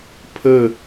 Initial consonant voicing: voiceless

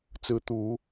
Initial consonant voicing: voiceless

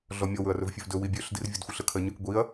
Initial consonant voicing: voiced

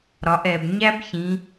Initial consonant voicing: voiced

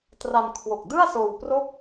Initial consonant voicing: voiceless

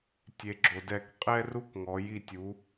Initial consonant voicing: voiceless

